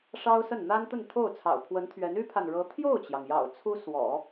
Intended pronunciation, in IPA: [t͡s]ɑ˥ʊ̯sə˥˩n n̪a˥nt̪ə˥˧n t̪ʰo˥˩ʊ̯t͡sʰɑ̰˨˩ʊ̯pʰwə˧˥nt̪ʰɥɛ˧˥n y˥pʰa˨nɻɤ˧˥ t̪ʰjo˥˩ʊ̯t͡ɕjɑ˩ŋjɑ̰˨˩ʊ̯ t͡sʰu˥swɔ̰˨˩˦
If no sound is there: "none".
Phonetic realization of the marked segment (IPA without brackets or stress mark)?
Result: ʂ